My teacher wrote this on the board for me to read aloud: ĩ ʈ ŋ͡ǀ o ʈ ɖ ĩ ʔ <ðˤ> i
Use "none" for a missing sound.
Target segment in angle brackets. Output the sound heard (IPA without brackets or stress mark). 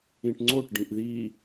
ð